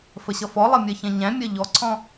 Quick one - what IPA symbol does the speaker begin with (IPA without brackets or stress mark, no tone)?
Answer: f